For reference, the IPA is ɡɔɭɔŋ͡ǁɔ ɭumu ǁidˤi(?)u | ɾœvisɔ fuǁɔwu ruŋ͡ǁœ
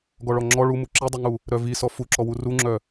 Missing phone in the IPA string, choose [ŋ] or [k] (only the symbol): ŋ